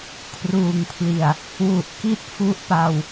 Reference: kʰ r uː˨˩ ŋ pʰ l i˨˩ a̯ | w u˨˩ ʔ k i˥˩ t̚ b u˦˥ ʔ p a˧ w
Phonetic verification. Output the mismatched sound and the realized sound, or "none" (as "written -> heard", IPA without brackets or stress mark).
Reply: b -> f